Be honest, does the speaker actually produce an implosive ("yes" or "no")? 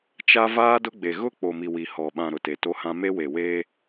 yes